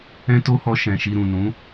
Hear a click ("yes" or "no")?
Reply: no